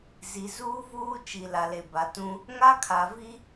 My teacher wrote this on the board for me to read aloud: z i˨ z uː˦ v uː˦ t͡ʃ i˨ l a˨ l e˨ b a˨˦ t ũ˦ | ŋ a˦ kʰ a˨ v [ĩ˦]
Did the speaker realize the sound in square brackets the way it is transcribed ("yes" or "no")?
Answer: no